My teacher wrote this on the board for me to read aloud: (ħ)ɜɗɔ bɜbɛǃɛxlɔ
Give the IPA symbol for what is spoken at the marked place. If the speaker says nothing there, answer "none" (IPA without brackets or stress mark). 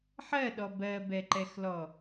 ħ